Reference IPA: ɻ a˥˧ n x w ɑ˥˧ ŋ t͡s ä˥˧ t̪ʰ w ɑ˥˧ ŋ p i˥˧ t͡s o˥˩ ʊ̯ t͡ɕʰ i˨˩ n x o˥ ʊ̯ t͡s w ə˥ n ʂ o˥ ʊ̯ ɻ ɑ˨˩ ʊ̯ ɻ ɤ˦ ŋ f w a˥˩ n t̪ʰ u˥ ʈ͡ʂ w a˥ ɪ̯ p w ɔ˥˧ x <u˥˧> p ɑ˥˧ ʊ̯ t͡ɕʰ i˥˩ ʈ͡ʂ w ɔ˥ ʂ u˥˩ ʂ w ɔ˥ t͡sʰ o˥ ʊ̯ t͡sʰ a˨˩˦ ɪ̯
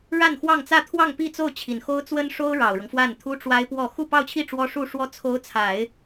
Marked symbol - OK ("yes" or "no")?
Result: yes